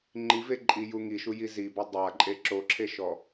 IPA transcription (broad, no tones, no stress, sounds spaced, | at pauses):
ŋ͡ǃ i v e ǃʼ i j u ŋ i ʃ u j i z i b ɔ dˤ a ǃʼ e ǁ o ǁʰ e ʃ ɔ